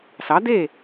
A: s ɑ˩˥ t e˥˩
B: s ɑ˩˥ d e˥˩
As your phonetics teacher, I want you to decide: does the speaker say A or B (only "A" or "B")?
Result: B